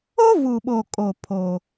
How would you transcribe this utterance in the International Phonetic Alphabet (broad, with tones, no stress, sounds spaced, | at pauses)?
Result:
o˦ v u˨ ɓ o˨ kʼ o˨ pʰ o˦